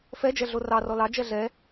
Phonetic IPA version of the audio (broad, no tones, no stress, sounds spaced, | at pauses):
f ɛ d͡ʒ ɛ ɮ o r ɑ r ɔ l ɑ d͡ʒ ɛ ɮ ɛ